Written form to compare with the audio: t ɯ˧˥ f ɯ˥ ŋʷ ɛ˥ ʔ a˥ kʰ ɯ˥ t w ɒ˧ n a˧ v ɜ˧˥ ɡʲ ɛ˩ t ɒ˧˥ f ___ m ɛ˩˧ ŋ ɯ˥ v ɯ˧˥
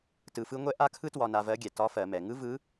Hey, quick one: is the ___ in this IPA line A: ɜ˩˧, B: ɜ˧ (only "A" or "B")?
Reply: A